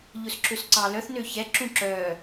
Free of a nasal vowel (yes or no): no